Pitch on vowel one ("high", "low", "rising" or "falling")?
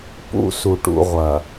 low